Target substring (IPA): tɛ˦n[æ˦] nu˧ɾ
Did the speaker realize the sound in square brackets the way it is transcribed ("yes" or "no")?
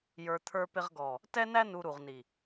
yes